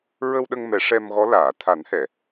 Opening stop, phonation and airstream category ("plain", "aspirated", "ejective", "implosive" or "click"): implosive